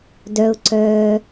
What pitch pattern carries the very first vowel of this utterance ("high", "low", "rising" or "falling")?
low